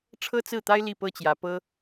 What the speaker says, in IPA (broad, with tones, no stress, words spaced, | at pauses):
ʈ͡ʂʰɤ˥t͡sɹ̩˥˩t̪a˥ɪ̯ li˥˩pɤ˥t͡ɕjä˧˥ pɤ˥